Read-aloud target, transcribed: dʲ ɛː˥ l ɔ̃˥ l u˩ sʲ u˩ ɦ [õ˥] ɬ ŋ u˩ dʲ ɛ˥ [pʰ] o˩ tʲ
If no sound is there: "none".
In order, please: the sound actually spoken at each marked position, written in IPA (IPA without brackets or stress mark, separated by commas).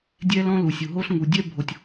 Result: o˥, bʱ